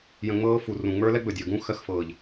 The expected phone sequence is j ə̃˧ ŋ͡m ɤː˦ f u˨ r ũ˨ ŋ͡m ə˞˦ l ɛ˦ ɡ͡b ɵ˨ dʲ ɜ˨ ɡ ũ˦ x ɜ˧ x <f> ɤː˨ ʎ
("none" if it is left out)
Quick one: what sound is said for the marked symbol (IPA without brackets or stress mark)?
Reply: f